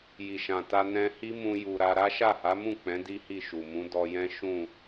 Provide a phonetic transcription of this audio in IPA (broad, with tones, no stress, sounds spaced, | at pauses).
j i˨ ʃ ã˨ t a˧ n ɛ̃˧ h i˦ m ũ˧ j u˨ ɾ a˧ ɾ a˦ ʃ a˦˨ h a˨˦ m ũ˦˨ k͡p ɛ̃˨˦ d i˦ h i˦˨ ʃ u˨ m ũ˨˦ d ɔ˧ j ɛ̃˦ ʃ ũ˦˨